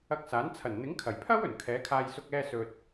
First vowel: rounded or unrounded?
unrounded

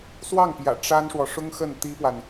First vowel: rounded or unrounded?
unrounded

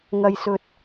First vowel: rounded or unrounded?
unrounded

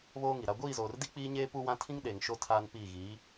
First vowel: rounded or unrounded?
rounded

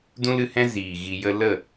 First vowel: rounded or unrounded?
rounded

